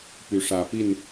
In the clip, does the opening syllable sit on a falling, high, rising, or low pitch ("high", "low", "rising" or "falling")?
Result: rising